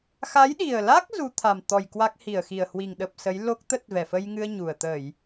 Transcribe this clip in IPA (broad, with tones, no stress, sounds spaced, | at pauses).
x a˨˦ j ɗ i˨˩ ə̯ l a˦˥ k̚ z u˨˦ t̪ʰ a˨˩ m t̪ ɔ˨˩ j k w a˦˥ k̚ h i˧˩ ə̯ x i˨˩ ə̯ h w i˨˩ ŋ ɗ ə˨˩ p̚ s ə˨˦ j l o˦˥ k̚ t̪ ə˦˥ t̚ v ɛ˧˩ f ə˧ j ŋ ɨ˧ ə̯ ɲ u˨˩ ə̯ t̪ ə˧˩˨ j